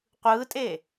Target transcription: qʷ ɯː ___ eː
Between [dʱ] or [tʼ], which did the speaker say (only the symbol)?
tʼ